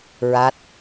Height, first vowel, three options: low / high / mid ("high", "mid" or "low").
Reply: low